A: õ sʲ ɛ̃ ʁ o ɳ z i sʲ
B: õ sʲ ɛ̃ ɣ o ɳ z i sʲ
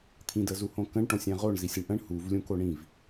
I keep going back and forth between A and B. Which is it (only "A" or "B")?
A